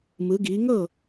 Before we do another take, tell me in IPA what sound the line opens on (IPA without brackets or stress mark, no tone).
m